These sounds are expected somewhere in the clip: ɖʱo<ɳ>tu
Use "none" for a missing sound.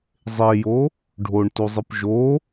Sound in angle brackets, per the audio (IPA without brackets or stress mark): ɳ